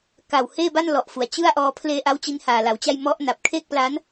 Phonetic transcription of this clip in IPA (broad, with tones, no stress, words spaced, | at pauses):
ka˨˩wheː˥˩ba˥˩n lɔ˨˩ʔfu˩˦a̯ t͡ɕɯ˥˩a̯ʔɔː˧ pʰleː˧ʔa˦˥w t͡ɕi˧nhaː˨˩la˩˦wt͡ɕa˥˩j mɔ˦˥ʔna˨˩p̚kʰeː˥˩k̚pla˦˥n